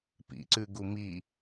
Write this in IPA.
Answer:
p ḭ ǀ ʉ ɡ u m i

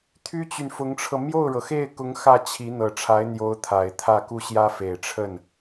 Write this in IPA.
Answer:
t̪ʰ y˥ t͡ɕ y˨ n f ʊ˧˥ ŋ ʈ͡ʂʰ ɤ˧ m j o˥˩ ʊ̯ ɻ ɤ˩ x e˥˩ ɪ̯ k ʊ˧˥ ŋ x ä˥˩ t͡ɕʰ i˧˥ n̪ ɤ˨˩ ʈ͡ʂʰ a˧˥ ɪ̯ n̪ j o˧˥ ʊ̯ t̪ʰ a˨˩ ɪ̯ t̪ʰ ä˥˧ k u˥˩ ɕ j ä˥ f e˨˩ ɪ̯ ʈ͡ʂʰ ə˥˩ n

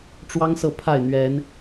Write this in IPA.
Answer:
ʈ͡ʂ w ɑ˦ ŋ s ɤ˥˨ pʰ a˥˨ ɪ̯ n̪ ɥ ɛ˨˦ n

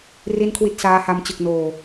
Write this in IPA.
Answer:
r i˥˩ n kʰ w i˥˩ t̚ s aː˦˥ h a˧ m t͡ɕ ɯ˨˩ k̚ n oː˨˩

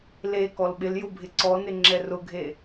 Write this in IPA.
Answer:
l e k ɔ l ɓ ɪ l j ʊ bʱ ɪ ǀ ɔ n ɪ ŋ͡ǁ ɛ r ʊ ɡʱ e

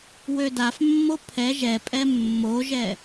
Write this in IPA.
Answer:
w ø d a f mː o pʰ ɛ ʒ ɛ pʼ ɛ mː o ʒ ɛ

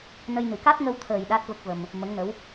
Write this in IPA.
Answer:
n ə˧ j n ɨ˨˩˦ k a˦˥ t̚ ŋ ə˧ w t̪ʰ əː˨˩ j ɗ a˦˥ t̚ v ə˦˥ k̚ v ə˧ m | m ə˧˥ ŋ n ə˧˥ w

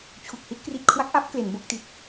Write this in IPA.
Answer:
t͡ɕʰ u˨˩ k̚ h i˦˥ t̚ k r i˨˩ t̚ kʰ w a˦˥ k̚ ʔ a˦˥ p̚ k l e˩˦ n b o˦˥ k̚ t i˨˩ t̚

